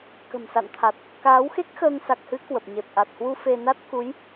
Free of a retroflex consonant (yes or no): yes